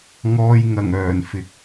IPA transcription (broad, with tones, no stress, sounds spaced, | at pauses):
ŋ ɔː˧ j ŋ ɐ˨˩ ŋ œː˨˩ n f ɪ˨ k̚